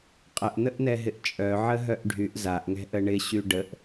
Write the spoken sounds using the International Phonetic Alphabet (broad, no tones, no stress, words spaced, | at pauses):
qʼəʔn̪əʔn̪ɛɦɪʔ t͡ʃʼœʕəɦœʔ ɖʱyʔ zaʔŋɛ̤ʔə ɳɪɕy ɖəʔ